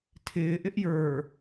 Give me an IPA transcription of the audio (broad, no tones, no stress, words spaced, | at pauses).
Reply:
tʰɪː ʔɪʔjə˞